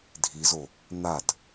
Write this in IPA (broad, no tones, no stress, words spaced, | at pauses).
dʱizo | n̪ad